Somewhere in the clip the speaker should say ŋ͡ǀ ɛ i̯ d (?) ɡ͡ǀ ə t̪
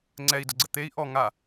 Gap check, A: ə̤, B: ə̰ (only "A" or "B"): A